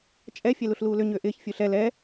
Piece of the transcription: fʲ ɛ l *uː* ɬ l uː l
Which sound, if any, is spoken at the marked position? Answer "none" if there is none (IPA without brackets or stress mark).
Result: u